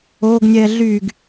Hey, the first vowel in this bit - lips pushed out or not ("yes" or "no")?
yes